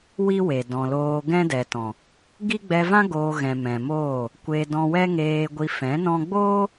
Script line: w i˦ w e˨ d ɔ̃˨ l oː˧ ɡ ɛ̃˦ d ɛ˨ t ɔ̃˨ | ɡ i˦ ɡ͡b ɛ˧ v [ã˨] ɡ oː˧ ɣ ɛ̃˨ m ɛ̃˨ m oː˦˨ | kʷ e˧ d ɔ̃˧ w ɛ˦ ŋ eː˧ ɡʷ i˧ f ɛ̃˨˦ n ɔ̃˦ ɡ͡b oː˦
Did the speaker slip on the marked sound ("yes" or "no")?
yes